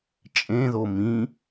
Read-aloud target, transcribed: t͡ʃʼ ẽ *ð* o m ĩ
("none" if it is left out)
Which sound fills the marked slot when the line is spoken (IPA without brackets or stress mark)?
ð